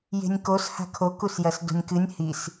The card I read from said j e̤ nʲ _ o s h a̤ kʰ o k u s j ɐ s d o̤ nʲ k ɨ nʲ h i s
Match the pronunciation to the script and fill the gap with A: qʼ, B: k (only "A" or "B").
B